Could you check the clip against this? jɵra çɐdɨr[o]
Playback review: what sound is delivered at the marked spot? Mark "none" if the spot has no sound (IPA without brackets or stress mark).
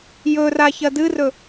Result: ɵ